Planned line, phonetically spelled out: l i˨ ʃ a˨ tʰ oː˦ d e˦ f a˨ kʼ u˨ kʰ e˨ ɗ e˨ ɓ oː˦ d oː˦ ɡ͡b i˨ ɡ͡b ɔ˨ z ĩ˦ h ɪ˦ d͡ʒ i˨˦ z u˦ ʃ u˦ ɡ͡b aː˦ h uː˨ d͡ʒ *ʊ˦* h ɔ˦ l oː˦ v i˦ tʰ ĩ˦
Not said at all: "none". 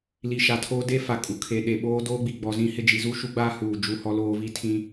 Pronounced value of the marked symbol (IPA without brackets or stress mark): u˦